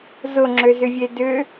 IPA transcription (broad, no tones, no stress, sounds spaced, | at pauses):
z ʊ ŋ͡ǁ ø z ʏ vʲ e d ʏ